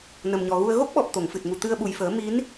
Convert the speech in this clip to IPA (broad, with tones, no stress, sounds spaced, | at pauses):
n ə˨˩ m ɲ ɔ˨˩ ɣ u˧ ə̯ ɣ o˦˥ k̚ ɓ ɔ˨˩ p̚ t̪ o˨˩˨ ŋ f ɨ˨˩ t̚ ŋ u˨˩ t̪ ɨ˧ ə̯ ɓ u˨˩ j f əː˨˩˦ m i˧˥ n